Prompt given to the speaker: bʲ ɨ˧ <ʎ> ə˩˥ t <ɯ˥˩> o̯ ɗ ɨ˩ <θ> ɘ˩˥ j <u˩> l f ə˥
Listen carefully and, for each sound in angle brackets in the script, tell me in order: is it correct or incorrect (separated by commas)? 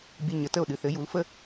incorrect, incorrect, correct, incorrect